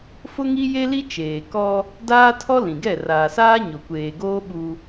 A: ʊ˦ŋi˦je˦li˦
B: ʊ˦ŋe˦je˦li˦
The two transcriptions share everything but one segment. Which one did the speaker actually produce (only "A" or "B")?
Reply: A